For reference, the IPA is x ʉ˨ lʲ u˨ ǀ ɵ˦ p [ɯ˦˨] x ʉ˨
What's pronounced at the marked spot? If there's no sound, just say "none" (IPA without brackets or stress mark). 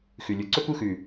u˦˨